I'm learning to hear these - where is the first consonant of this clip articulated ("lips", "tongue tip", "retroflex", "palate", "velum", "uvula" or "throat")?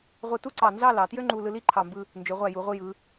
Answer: uvula